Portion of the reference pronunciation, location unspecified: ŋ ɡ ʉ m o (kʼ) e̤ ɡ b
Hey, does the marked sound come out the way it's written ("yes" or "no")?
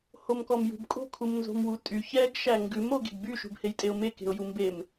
no